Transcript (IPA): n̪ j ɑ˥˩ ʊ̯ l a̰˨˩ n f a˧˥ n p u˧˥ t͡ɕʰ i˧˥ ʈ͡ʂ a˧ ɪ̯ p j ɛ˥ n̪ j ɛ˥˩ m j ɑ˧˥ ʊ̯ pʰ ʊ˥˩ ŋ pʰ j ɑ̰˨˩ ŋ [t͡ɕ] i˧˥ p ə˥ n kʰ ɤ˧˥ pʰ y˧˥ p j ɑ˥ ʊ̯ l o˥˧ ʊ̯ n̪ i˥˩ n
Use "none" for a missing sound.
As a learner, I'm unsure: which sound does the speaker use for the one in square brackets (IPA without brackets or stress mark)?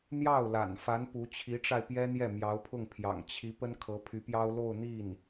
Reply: t͡ɕʰ